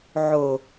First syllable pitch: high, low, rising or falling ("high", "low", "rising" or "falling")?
low